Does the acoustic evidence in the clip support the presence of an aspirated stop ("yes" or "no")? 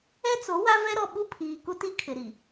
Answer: yes